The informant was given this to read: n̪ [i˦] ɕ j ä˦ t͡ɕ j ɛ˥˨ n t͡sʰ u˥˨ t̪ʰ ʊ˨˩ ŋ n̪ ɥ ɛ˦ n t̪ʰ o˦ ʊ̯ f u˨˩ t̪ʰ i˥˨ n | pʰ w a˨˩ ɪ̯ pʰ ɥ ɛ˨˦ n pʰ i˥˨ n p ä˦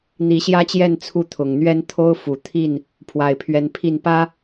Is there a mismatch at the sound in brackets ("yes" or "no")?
yes